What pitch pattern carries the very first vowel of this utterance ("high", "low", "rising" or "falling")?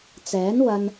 rising